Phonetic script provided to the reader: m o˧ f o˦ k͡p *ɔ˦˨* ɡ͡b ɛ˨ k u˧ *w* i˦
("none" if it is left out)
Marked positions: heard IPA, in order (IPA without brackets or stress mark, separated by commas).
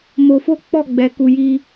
ɔ˦˨, j